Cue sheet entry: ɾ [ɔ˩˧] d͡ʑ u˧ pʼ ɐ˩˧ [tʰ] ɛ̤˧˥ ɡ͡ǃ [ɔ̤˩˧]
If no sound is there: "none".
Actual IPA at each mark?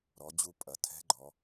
ɔ˩˧, tʰ, ɔ˩˧

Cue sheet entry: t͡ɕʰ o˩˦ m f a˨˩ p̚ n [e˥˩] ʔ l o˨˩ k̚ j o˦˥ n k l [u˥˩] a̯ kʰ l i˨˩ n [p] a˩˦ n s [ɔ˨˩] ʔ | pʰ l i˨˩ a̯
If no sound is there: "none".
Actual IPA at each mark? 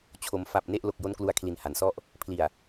e˥˩, u˧, h, ɔ˥˩

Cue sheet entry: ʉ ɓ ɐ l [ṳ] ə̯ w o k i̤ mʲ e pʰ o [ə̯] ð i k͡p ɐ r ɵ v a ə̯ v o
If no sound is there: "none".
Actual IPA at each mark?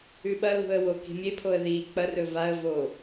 ṳ, ə̯

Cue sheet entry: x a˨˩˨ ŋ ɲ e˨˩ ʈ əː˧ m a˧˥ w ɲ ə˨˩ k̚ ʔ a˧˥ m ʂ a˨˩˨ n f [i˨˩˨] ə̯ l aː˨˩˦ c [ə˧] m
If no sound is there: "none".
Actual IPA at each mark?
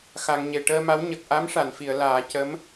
i˨˩˨, ə˧˥

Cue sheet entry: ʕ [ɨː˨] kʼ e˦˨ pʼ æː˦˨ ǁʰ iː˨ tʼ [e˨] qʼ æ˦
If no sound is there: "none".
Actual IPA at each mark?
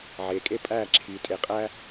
eː˨, e˨

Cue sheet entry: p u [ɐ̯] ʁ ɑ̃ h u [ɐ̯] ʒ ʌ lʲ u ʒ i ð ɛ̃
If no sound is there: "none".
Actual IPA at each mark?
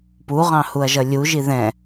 none, ɐ̯

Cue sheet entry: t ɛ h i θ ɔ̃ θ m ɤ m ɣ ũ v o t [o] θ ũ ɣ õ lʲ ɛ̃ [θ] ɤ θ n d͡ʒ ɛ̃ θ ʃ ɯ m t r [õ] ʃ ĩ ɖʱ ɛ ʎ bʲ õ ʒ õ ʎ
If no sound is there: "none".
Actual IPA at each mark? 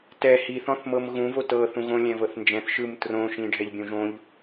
ɤ, v, õ

